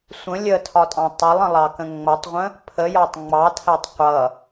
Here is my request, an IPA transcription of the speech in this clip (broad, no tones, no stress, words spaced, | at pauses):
sʷə̃ lʲətʰɒtʼɑ̃ tˤɪlˠə̃lˠɑkə̃ ŋ͡mʌtˤʁʷə̃ | pʰəjɒtˤ ŋ͡mɑtʰætˤ qʷʌ